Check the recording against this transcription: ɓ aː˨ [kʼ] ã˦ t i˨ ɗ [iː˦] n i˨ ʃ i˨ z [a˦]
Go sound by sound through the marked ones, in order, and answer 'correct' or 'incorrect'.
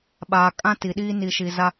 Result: correct, correct, correct

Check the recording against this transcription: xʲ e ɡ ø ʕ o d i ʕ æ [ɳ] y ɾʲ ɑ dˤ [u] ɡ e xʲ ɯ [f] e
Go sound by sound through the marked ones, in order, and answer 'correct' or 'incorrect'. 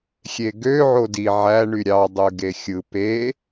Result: correct, incorrect, incorrect

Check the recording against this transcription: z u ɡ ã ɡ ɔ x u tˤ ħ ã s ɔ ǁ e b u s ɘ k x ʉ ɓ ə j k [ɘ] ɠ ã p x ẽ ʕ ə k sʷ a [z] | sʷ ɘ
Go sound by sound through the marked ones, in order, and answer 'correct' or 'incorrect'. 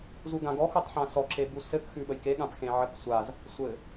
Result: incorrect, correct

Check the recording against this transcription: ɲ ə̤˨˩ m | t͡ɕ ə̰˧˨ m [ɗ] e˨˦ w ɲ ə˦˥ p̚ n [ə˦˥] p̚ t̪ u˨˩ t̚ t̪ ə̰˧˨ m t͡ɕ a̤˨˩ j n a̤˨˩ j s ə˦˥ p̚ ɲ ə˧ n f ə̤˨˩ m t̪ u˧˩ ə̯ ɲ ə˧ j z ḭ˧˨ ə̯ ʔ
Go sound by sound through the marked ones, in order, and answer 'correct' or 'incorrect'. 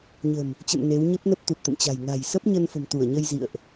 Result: incorrect, correct

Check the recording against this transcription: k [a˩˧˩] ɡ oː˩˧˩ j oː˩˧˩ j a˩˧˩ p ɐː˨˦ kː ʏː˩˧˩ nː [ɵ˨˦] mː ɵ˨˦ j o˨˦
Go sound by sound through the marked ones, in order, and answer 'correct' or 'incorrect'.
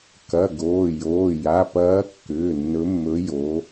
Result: incorrect, correct

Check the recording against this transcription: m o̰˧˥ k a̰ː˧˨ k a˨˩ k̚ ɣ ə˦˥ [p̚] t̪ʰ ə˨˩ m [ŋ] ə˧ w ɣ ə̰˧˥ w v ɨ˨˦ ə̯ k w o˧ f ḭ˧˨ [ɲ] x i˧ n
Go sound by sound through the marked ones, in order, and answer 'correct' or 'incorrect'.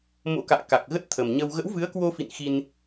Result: incorrect, incorrect, incorrect

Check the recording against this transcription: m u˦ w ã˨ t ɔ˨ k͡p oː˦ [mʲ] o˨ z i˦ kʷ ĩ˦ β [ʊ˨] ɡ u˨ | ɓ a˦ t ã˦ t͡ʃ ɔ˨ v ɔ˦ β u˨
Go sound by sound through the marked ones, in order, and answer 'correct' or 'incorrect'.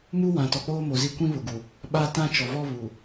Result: incorrect, correct

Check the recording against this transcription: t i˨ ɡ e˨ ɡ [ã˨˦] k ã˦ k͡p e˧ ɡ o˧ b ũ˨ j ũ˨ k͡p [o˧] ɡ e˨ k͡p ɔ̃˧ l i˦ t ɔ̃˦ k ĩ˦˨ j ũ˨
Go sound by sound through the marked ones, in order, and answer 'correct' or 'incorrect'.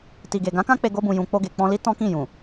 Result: correct, correct

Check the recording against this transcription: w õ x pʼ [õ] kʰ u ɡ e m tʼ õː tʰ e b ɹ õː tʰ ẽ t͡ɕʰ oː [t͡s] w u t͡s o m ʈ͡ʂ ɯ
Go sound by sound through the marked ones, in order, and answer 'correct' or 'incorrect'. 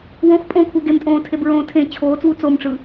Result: correct, correct

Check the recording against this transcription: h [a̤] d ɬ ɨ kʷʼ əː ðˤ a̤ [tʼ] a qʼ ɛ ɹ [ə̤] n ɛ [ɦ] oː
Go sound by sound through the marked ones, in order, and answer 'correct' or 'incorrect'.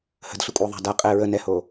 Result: incorrect, incorrect, incorrect, incorrect

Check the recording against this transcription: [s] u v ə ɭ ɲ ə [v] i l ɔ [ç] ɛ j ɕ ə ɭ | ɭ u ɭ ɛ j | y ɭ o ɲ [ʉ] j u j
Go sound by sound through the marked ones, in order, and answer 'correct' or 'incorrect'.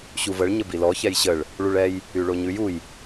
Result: incorrect, incorrect, correct, correct

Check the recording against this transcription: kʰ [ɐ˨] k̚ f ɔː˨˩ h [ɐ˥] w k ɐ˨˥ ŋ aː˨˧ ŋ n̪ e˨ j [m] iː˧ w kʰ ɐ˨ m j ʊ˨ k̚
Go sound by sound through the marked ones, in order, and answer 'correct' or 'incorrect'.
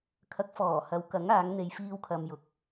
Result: incorrect, incorrect, incorrect

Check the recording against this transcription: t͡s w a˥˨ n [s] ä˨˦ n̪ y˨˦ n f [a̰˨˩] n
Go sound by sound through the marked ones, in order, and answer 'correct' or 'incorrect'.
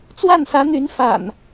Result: correct, correct

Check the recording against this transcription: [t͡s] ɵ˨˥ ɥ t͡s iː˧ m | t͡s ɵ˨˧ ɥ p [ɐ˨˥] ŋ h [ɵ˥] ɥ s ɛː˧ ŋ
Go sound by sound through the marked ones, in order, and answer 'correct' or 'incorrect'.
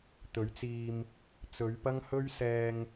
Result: incorrect, incorrect, correct

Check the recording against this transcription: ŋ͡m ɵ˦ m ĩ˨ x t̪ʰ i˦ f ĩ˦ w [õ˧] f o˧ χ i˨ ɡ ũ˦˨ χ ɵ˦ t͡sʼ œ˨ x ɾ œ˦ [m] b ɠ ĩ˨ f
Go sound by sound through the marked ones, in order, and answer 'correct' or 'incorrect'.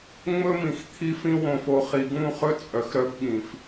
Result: correct, incorrect

